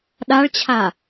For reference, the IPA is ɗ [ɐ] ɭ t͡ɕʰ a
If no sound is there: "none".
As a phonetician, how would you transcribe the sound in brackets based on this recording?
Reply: a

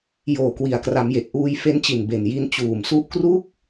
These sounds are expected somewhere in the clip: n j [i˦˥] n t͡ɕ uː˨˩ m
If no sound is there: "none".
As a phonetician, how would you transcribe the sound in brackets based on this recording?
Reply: i˦˥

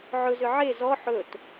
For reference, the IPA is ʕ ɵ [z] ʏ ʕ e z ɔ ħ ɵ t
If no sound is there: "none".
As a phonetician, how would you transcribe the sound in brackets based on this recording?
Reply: z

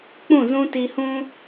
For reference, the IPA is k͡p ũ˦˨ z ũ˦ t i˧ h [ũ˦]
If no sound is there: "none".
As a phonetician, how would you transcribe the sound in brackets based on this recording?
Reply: ũ˦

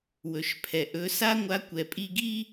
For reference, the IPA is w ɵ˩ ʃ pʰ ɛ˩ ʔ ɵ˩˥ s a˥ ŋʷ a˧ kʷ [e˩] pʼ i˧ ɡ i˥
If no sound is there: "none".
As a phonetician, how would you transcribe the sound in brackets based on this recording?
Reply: ɛ˩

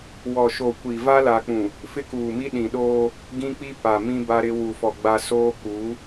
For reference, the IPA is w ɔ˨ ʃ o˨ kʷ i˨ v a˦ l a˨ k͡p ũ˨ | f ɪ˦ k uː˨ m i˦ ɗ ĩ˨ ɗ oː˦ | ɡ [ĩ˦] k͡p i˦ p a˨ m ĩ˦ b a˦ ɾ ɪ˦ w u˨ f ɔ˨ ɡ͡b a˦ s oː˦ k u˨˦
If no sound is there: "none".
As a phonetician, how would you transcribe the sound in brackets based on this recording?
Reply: ĩ˦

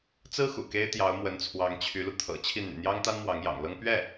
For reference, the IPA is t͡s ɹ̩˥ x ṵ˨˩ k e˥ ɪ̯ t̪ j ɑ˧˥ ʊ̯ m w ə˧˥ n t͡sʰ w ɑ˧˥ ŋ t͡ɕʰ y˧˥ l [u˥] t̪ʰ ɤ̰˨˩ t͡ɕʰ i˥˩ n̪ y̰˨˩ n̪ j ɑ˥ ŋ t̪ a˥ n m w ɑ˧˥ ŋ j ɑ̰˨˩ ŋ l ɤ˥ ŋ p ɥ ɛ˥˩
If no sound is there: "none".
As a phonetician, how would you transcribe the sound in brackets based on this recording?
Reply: u˧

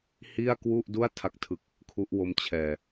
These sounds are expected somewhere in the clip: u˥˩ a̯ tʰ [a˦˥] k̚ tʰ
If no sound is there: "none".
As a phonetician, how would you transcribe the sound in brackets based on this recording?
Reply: a˦˥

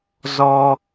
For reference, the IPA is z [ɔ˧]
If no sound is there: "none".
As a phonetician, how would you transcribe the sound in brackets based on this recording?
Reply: ɔ˧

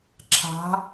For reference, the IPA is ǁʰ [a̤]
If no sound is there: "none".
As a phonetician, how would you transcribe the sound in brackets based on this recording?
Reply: a̤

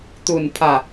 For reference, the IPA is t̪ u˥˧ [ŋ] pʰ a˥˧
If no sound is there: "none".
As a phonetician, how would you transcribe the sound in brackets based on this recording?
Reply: n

